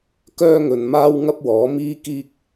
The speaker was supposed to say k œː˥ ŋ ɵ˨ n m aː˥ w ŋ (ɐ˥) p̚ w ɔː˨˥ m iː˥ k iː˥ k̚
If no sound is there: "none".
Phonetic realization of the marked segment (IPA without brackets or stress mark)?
ɐ˥